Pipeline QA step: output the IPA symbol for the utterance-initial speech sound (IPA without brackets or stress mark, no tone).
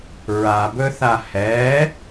ɹ